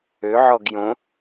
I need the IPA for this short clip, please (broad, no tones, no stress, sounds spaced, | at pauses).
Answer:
ø ʕ ɔ ɡ j õ